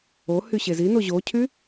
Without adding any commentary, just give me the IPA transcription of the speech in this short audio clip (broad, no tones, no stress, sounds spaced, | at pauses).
o h y ɕ e z i n o ʑ o cʰ y